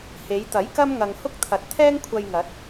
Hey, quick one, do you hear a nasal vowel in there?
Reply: no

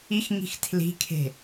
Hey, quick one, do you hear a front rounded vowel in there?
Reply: no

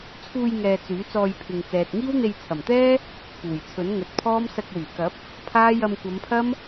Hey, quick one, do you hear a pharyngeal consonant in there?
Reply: no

